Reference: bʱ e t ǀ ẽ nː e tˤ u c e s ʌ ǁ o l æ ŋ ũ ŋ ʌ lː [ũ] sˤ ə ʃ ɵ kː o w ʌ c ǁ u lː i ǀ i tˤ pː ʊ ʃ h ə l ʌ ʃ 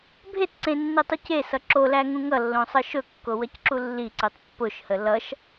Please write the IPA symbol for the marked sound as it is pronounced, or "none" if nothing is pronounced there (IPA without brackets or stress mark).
õ